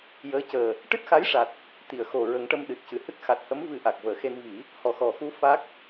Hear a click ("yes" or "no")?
no